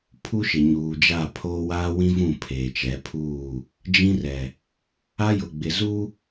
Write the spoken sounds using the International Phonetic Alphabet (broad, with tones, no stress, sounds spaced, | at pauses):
pʰ u˦ ʃ ɪ˨ ɲ uː˨ d͡ʒ a˦˨ pʰ oː˦ w aː˦ w ĩ˦ v ũ˦˨ pʰ eː˨ t͡ʃ ɛ˨˦ pʰ uː˦˨ | d͡ʒ ĩ˦ r ɛ˨ | a˦ j ʊ˨ ɡ͡b ɪ˨ z u˦